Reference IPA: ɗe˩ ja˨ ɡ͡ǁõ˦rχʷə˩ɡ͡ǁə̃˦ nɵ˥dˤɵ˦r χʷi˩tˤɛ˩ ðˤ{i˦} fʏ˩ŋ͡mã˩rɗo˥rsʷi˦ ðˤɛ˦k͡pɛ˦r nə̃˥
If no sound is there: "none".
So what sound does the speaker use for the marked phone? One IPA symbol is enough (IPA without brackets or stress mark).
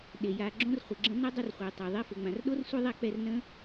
i˦